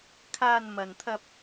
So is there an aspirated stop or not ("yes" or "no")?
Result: yes